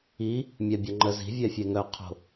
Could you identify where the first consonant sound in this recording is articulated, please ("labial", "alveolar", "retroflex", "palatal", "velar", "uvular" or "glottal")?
labial